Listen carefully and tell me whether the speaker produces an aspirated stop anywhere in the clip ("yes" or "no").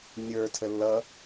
yes